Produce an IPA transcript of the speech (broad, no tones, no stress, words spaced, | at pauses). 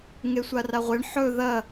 ŋesʷaraʁʷeɳ ħɵ ðɐ